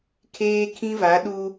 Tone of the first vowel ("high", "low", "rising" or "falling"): high